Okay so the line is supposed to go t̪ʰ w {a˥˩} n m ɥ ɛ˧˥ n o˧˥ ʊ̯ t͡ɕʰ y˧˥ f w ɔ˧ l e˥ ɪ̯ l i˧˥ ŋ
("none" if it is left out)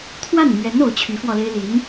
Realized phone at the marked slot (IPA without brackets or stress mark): a˥˩